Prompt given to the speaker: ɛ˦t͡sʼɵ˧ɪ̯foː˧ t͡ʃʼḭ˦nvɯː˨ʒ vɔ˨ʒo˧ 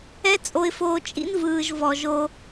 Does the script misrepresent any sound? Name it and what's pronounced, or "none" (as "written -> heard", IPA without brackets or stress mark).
ɵ˧ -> o˧